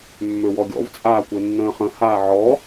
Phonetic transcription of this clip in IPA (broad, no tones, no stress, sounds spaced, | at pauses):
mː ø w ɔ ɡʲ ɔ̰ v t͡sʼ aː kʷ e nː ə̃ː χ ə̃ h aː ʕ ɔ